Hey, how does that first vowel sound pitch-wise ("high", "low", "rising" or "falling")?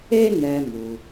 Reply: high